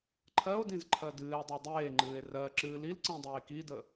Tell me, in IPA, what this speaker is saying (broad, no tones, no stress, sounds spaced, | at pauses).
ǃʰ ɜ o̯ d ĩ z ǃʰ ɜ d ɨː e̯ dˤ ɜ dˤ eː ŋ͡ǃ ɨː e̯ r ɜ ǁ ɨː l i l ǀ ĩ dˤ eː k i d ə